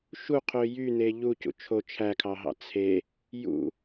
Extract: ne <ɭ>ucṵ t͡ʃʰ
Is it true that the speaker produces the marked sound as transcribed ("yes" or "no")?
no